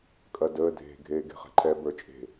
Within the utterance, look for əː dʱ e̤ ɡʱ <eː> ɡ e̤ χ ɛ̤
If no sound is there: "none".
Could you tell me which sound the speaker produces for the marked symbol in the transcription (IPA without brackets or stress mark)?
eː